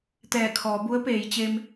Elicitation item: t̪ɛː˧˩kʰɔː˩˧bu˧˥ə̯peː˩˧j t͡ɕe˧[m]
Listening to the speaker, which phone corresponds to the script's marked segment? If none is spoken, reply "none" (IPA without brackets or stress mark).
m